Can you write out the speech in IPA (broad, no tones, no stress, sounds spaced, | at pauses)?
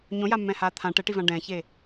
ɲ õ j a mː ɛ̃ h aː t̪ʰ ã ʈ ɛ ʈ i v ã ɖ ɛ̃ː ç e